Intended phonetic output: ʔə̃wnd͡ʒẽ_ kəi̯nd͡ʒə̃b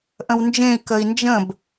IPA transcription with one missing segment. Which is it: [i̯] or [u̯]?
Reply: i̯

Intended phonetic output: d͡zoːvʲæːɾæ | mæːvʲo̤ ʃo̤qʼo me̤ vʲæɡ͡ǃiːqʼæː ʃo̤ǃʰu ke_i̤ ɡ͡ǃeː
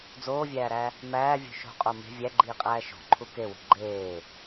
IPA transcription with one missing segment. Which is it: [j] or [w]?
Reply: w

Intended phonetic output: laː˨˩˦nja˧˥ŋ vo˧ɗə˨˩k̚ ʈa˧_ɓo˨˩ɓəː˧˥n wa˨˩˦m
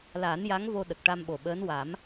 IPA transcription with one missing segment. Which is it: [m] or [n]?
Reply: m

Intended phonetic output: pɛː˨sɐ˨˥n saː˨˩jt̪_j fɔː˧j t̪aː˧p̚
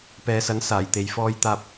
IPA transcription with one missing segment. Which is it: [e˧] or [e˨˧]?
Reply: e˨˧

